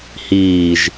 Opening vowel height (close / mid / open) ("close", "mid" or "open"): close